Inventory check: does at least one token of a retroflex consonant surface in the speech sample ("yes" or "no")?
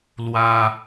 no